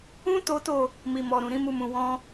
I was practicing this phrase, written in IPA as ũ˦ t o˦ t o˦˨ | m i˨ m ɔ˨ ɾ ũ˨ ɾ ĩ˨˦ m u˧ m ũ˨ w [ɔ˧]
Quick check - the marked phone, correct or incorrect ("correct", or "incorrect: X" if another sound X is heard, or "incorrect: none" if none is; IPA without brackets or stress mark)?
incorrect: ɔ̃˧